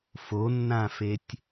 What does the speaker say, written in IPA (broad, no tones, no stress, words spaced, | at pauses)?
fonːãfetʲ